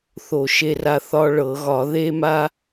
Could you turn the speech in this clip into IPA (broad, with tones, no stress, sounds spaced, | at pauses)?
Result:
θ o˧˩˧ ʃ e˧ r a˧ θ ɒ˧ ɭ ɤ˧˩˧ ɣ ɒ˧˩˧ ð e˧ m a˧